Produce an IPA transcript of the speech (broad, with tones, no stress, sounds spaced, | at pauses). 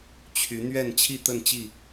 t͡ɕʰ y˨˦ n̪ ɥ ɛ˥˨ n t͡ɕʰ i˥˨ t̪ ə˥˨ n t͡ɕ i˥˨